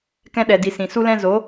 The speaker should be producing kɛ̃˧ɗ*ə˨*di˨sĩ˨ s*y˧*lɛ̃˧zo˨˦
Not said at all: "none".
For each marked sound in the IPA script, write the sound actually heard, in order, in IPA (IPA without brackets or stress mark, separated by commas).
ɛ˨, u˧